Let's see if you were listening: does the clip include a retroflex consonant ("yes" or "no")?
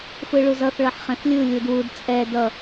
yes